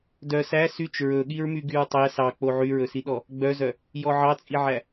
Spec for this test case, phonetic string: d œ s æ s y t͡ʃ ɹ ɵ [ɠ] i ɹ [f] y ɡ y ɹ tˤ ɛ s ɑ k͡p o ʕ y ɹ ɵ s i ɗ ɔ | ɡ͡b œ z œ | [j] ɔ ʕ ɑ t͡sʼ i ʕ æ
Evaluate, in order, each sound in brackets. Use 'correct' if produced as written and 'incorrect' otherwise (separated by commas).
correct, incorrect, correct